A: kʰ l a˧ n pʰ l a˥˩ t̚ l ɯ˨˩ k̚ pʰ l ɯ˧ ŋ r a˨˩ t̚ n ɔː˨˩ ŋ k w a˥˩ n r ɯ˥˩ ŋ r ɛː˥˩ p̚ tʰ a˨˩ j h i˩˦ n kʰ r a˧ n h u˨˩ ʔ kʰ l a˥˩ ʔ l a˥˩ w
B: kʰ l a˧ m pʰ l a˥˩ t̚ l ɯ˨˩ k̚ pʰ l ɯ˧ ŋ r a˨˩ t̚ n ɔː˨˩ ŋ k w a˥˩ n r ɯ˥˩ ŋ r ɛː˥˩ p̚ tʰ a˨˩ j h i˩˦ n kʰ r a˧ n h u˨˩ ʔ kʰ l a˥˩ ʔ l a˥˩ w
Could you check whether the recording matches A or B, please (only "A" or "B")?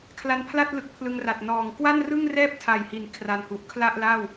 A